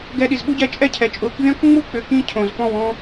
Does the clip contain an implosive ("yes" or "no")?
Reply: yes